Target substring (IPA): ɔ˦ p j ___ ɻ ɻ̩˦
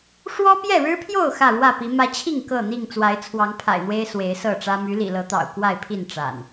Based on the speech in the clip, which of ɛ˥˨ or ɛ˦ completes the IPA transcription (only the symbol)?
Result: ɛ˥˨